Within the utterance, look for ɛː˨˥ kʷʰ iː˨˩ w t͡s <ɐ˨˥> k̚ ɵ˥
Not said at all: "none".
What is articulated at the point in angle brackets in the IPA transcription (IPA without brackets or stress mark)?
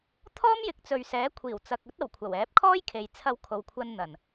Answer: ɐ˨